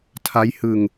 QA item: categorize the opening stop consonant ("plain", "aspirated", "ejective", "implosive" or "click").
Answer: aspirated